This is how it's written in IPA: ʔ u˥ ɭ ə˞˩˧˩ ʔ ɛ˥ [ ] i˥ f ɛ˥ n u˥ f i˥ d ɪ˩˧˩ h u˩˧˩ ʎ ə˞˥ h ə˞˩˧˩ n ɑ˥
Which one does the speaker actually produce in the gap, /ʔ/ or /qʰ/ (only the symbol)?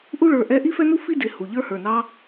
ʔ